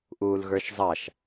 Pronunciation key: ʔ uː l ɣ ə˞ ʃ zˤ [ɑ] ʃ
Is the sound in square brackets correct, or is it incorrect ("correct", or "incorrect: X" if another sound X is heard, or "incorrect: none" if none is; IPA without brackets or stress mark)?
correct